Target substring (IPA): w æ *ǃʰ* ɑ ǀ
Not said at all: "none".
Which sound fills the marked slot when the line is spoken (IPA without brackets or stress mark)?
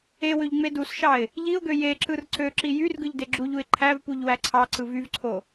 ǀʰ